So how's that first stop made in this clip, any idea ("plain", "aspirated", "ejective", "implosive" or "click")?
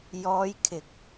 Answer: aspirated